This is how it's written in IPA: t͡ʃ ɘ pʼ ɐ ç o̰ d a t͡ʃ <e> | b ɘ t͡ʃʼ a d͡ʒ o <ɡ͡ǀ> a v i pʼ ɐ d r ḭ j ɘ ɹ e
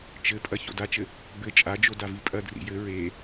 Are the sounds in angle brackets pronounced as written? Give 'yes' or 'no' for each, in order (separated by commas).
no, no